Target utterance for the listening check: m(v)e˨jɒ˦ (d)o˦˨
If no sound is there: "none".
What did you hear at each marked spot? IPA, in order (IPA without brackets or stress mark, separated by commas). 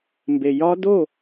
b, d